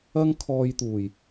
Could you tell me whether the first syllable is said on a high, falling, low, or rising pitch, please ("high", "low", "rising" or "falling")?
high